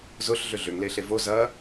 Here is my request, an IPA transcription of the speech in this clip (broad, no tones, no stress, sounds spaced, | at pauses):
z ʊ ɬ ɮ ʏ ɮ ʏ ŋ l eː ɬ e v o z ɐː